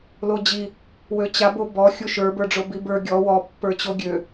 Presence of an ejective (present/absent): absent